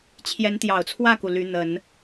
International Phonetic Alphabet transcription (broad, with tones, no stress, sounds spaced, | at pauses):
t͡ɕʰ j ɛ˧˥ n t̪ j ɑ˨˩ ʊ̯ t͡sʰ w ä˥˩ k u˩ l y˧˥ n̪ ə˨˩˦ n